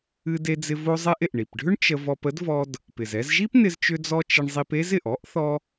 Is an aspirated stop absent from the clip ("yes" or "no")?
yes